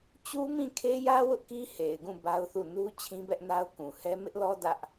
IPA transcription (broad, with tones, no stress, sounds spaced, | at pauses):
t͡ɕ u˦ m ĩ˦˨ kʰ e˦ j ä˦ w ʊ˦ ʔ k i˦ h e˨ ɪ̯ ɡ ũ˦˨ b a˦ ʊ̯ θ u˦˨ n u˦ t͡ɕʰ ĩ˦ b ɛ˦ ʔ n a˦ ʊ̯ k ũ˨ h ɛ˦ m ɪ˦ ʔ l ɔ˦ d ä˦ ʔ